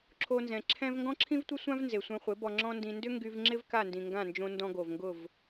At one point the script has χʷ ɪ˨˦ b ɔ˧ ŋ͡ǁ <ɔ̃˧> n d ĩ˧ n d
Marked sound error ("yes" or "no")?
yes